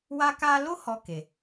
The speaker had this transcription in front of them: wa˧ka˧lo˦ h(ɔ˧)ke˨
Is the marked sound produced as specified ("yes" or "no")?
yes